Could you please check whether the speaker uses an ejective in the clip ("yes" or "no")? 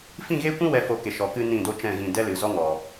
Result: no